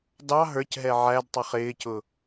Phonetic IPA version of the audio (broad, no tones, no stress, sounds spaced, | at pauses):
d ɑ ɦ ə˞ c ɦ ɛ ʕ æ d tˤ ʌ χ ɪː c ʊ